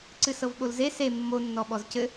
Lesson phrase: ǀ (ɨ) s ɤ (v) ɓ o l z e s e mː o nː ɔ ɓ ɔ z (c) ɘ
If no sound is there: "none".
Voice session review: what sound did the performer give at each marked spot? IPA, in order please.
ɨ, v, c

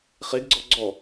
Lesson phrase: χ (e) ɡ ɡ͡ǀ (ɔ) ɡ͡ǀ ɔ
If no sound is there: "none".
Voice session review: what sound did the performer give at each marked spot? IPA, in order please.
e, ɔ

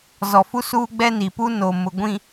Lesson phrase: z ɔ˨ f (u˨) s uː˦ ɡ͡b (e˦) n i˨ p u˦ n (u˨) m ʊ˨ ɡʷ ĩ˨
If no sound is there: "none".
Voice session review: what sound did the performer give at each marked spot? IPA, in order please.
u˦, ɛ˦, o˨

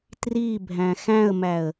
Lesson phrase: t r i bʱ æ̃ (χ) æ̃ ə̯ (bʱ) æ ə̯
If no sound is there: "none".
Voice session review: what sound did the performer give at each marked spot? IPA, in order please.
x, m

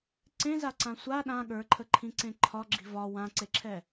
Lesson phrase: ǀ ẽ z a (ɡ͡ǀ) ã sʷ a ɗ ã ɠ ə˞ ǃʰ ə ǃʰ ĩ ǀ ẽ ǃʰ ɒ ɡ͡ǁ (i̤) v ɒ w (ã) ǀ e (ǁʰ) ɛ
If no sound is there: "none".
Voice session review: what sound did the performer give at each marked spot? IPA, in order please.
ǀ, i̤, ã, ǁʰ

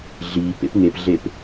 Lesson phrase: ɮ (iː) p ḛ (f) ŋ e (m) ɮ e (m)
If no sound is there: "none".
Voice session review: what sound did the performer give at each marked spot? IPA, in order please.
iː, p, p, p

